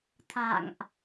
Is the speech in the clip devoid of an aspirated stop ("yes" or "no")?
no